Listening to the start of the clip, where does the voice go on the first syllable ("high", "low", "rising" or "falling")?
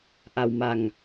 low